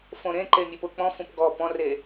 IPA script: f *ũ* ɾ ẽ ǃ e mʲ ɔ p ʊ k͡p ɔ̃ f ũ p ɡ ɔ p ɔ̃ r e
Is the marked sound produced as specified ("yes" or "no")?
no